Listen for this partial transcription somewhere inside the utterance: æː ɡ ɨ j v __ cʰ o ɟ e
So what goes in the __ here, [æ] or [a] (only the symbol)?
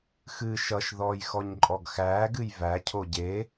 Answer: æ